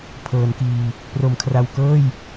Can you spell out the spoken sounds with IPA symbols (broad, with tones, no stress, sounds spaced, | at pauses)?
pʰ ɤː˩˦ n k iː˨˩ | p r o˩˦ m kʰ r a˨˩ w k ɤː˥˩ j